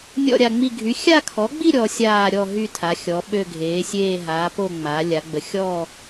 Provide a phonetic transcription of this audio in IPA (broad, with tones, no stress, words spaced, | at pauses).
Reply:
nʲɔ̰˥˧ɾʲa˥˧ŋ͡mi˥˧ ɡʱy˩˥xʲa˥˧kʰɔ˩˥ɡ͡bi˥˧ ɾʲɔ˩˥sʲaː˥˧ ɾʲɔ˥˧ɦy˥˧ tʰa˩˥xʲɔ˩˥ ɓø˥˧ɡʱeː˩˥sʲeː˥˧ ɦaː˩˥ po˥˧ŋ͡ma˩˥ lʲa˩˥ɡ͡bə˩˥ xʲɔ˥˧